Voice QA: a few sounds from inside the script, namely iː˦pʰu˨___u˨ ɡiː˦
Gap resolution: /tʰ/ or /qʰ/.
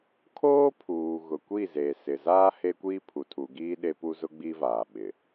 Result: tʰ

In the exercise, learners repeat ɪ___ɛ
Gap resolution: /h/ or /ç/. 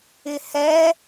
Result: h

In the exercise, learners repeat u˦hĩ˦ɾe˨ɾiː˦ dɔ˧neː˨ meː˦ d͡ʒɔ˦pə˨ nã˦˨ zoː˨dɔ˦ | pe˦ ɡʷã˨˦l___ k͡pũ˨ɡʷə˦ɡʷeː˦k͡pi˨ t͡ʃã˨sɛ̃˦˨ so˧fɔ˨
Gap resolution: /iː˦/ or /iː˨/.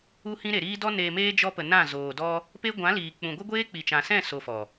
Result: iː˨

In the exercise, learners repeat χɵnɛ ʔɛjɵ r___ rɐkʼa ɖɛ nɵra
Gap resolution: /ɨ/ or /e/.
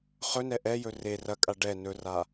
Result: e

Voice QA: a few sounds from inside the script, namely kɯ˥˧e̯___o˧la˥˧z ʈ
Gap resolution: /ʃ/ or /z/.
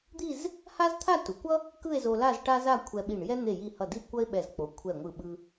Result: z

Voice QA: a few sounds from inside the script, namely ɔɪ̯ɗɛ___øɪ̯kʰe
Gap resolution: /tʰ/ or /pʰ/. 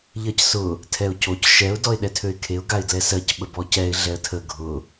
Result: tʰ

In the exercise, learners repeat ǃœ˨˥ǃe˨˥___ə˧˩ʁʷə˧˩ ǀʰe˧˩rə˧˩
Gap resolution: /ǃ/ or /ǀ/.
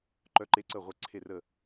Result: ǀ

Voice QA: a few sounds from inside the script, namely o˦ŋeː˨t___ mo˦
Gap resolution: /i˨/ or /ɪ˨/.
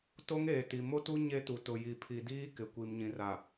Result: i˨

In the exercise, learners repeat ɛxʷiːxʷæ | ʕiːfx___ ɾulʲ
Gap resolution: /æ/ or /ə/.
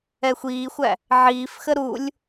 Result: ə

